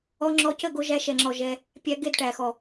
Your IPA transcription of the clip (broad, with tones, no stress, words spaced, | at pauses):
ɔ˧ ŋ͡ǁɔ˧cə˦˨ ɡo˧ʒæ˧ʃɛ˨ŋ͡ǁɔ˨ ʒɛ˧ | pʲæ˧ɡe˦˨dʈæ˨xɔ˨